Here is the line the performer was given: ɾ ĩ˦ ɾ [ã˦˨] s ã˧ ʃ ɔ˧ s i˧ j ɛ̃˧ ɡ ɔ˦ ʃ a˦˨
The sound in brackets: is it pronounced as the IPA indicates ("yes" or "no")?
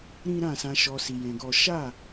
yes